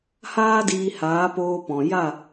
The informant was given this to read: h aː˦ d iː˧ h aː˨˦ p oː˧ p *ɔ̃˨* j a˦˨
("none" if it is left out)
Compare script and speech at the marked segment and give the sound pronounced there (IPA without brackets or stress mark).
ɔ̃˨